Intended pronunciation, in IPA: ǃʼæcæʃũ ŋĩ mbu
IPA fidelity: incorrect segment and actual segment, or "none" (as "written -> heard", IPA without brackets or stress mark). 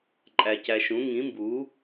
none